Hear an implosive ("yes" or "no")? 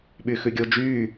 yes